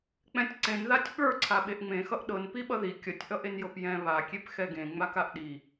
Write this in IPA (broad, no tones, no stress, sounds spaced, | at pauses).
k͡p ɛ̃ tʲ ǀ ẽ n ð a tʲ ɓ ə˞ ǀʰ a ɓ e ʔ ŋ͡m ẽ x ʌ ʔ ɗ ɤ n p i ɓ ʌ ð i kʲ ʌ tʲ ʔ ʌ ʔ e n j ɤ p j ɛ̃ β a kʲ e p x ɛ ɡ ẽ ŋ͡m a k a ʔ ɗ i